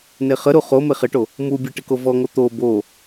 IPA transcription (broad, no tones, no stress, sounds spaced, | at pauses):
n e χ ə ɾ u χ o m e χ ɪ ʈ o | m u bʲ e ʈ ɪ k o v ɔ ŋ o t̪ o b o